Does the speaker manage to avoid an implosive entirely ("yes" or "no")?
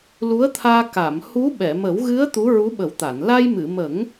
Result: no